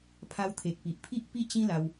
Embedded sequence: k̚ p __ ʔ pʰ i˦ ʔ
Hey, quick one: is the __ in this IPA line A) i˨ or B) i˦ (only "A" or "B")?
A